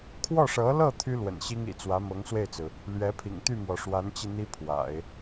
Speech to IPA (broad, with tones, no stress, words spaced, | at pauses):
kʰwɔ˥˩ʂɤ˧˥lɤ˥˩ t̪ʰy˥lwə̰˨˩nɕi˥ŋ ḭ˨˩t͡swä˧˥mɤ˧˥ŋ swe˥˩ɪ̯t͡sɹ̩˩ | lɥɛ˧˥pʰḭ˨˩ŋ t̪y˥˩mwɔ˩ʂwa˧˥nt͡ɕi˧ n̪i˥pʰwa̰˨˩˦ɪ̯